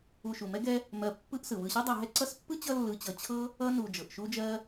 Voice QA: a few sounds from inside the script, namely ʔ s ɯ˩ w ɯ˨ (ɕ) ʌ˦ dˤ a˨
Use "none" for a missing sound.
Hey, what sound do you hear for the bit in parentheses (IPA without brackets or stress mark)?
ɕ